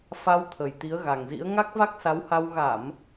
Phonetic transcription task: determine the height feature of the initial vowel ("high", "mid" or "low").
low